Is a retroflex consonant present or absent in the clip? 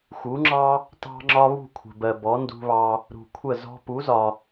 absent